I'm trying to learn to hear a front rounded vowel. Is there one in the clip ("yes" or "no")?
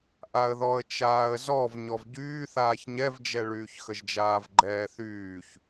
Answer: yes